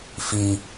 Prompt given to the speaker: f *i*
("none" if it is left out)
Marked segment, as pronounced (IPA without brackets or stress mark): i